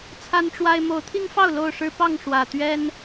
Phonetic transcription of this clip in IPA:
t͡sʰa˦nʈ͡ʂwa˦ɪ̯ mo˨˦ʊ̯t̪ʰi˦ŋfɑ˥˨ʊ̯ lo˥˨ʊ̯ʂɻ̩˦ pɑ˥˨ŋ ʂwä˨˩ t̪ɥɛ˦n

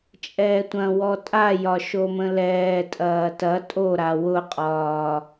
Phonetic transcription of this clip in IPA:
t͡ʃʼɛːtʷɐ̃wɔ tʼajɒ ʃomə̃lɛːtʼɐː tɐ tʼoɾa wʊqʼɒː

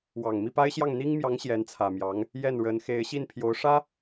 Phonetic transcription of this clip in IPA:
wɑ˨˩ŋmi˥˩pa˥ɪ̯ɕjɑ˥˩ŋ n̪i˥ŋmjɑ˧˥ŋ ɕjɛ˧˥nt͡sʰä˨˩mjɑ˧˥ŋ | jɛ˥˩nɻə˧˥n xe˧˥ɪ̯ɕi˥˩npʰjo˧˥ʊ̯ ʂä˥

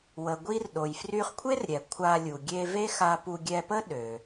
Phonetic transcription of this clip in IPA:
wə˩ɡʷi˧r ɗo˩jfry˧χkʷʰe˥rɾʲɛ˩ kʷʰa˧lʲu˩ ɡʲe˧ve˥xa˧pu˧ ɡʲɛ˧pə˥ ɗø˩

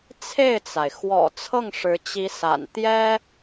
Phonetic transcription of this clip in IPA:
t͡sʰe˥˩ɪ̯t͡sa˩ɪ̯ xwɔ̰˨˩ t͡sʰɤ˥˩ŋʂɻ̩˧˥ t͡ɕi˧˥sa̰˨˩n t̪jɛ˥

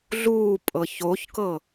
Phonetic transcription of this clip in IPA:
ɮuːpʼɤ çoçkɤ

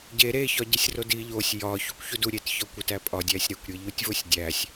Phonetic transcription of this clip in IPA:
ɟe ɾeçɒ ɟesʲrodi ʎosʲ jɒ çukʷçudu ɾʲet çɒkʷit æpʼɒ dʲæsʲɾekʷɾʲe ʎutʲvosʲdʲæsʲ

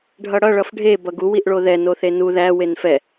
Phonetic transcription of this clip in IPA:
ɖʱʌɽʌ ɭʌfɖʱe bʌɡu wiʔɭoðɛ noθenu ðæ wenfɛ

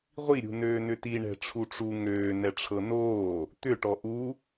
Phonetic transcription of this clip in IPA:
ʁʷiɾʲṳ nøːnʏtiɳɛ̤ ʈ͡ʂʰuʈ͡ʂu ŋøː nɛʈ͡ʂʰɤnoː | t̪ʏʈɔ ʔu

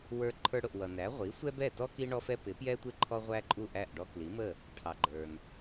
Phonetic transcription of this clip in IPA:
wə˞˧ ǃʰə˞˧ɽʊ˩ʔwʌ˩næ˩˥ ʁʷi˩˥sʷɛ˥bɛ˥˩tɔ˥ ki˥ɳɔ˥fɛ˥ pɪ˩˥pjɛ˥tʷɪ˥˩ ǃʰɔ˥ʁʷæ˥ǃʼu˥˩ʔæ˥˩ʔ ɖɔ˧kli˩˥mə˥˩ | ʈʰɑ˩ ɡ͡ǃə˞˩n

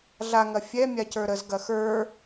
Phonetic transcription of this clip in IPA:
ɮaŋɐ fʲɛ mʲacə˞ɾəz ɡɐxə˞

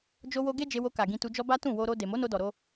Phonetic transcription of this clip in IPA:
d͡ʒo˦wo˦ ɡe˦ d͡ʒe˧wo˧ka˨ ɡĩ˧tu˧d͡ʒɔ˦ ba˦tũ˦˨ wo˧ɾo˧ de˨mo˨˦no˧dɔ˨ ɾo˧

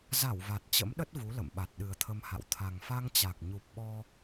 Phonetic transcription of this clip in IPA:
za˧˩w va˨˩t̚t͡ɕə̰˧˥mɗə˦˥t̚ vu˨˦lə̰˧˨mɓa˨˩t̚ ɗɨ˨˩ə̯t̪ʰə˧mha̰˧˨w t̪ʰa˨˩ŋfa˧ŋt͡ɕa˨˩k̚ ɲu˨˩p̚ɓɔ˧

